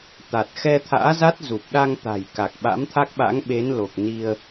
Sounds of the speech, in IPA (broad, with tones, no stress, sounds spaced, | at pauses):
t̪ a˨˩ t̚ x ɛ˧ t̪ʰ a̰ː˧˥ z a˦˥ t̚ z u˨˩ p̚ ɗ a˧ ŋ t̪ a̤˨˩ j k a˨˩ k̚ ɓ a̰˧˥ m t̪ʰ a˦˥ k̚ ɓ a̰˧˥ ŋ ɓ e˨˦ n l o˨˩ k̚ n i˧ ə̯